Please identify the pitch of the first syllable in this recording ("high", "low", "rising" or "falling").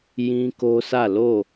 high